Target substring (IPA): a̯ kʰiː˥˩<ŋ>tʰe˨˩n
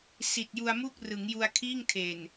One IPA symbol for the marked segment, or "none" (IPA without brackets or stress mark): ŋ